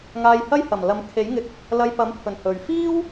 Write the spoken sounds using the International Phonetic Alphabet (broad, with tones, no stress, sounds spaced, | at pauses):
ŋ aː˧ j h ɐ˥ j h ɐ˨˩ m l ɐ˨˧ m kʰ e˨˥ j ŋ ɪ˧ k̚ | l ɐ˧ j p ɐ˨˥ m pʰ ɵ˨˩ n h ɵ˨ ɥ f iː˥ w